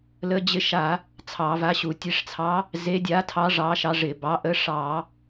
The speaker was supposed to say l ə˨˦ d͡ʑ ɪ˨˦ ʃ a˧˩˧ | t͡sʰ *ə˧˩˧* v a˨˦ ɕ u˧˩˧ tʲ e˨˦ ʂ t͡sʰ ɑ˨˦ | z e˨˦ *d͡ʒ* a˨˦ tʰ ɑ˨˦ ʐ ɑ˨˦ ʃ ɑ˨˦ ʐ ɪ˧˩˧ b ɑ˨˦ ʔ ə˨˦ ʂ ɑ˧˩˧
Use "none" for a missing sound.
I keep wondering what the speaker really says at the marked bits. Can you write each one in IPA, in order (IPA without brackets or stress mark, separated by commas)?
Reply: ɑ˧˩˧, dʲ